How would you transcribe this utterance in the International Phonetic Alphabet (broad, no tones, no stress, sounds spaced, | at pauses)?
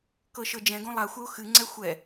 k ɤ ʃ ɤ d͡ʒ ɛ̃ ɡ õ lˠ a xʷ ɛ ʊ̯ x ɨ ŋ͡ǀ ɛ xʷ ɛ